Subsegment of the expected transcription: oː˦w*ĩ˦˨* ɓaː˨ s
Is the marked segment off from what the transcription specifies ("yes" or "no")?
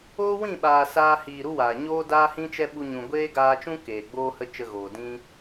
no